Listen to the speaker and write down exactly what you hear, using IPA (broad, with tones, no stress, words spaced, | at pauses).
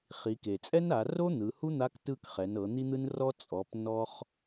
χi˩˧ke˩t͡sʼɛ˥na˩˧ ro˥ n̪ɯ˩˧hu˥n̪a˧˥k tɯ˧kχɛ˩˧nɤ˩˧ n̪i˥n̪ɯ˥nrɔ˥ t͡sʼɔ˩˧p nɔ˥χ